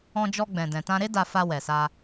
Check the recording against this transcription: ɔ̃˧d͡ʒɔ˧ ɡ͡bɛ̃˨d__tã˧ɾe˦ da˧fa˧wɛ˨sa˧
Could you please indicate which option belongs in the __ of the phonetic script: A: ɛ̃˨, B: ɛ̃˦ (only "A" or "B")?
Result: A